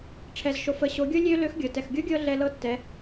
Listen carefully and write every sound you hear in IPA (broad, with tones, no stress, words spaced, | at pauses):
ʈ͡ʂʰɛ˩zʃo˩fə˩˧ ɕo˩˧ɡʲo˥ lʲø˥ lø˧˥xɡʲɤ˩ tɛ˩xɡʲo˧˥ɡʲɤ˧ ɮɛ˧lɤ˧˥tːɛ˩˧